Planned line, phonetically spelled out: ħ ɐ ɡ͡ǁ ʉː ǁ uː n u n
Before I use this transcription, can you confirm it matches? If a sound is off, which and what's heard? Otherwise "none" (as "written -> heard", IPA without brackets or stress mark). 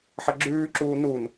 none